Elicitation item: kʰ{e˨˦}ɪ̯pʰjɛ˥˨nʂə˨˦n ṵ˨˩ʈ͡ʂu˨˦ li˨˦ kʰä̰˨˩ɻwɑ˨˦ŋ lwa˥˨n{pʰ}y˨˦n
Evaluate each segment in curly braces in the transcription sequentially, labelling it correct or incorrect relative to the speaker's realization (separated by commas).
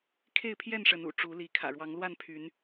incorrect, correct